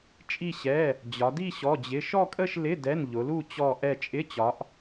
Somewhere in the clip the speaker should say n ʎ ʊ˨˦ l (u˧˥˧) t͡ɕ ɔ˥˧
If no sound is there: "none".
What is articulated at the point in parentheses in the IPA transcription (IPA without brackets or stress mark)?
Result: u˥˧